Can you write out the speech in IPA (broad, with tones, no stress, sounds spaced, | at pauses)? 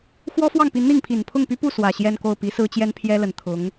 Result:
x w ɔ˥ f w ɑ˥˩ ŋ p i˧˥ n n̪ i˥˩ ŋ pʰ i˨˩ n pʰ ʊ˥˩ ŋ p y˥ p u˥˩ s w ä˨˩ ɕ j ɛ˥˧ n k o˥˩ ʊ̯ p i˧˥ s ɹ̩˥ t͡ɕ j ɛ˥ n pʰ j ɛ˥ l ə˨˩ n t̪ʰ ʊ˧˥ ŋ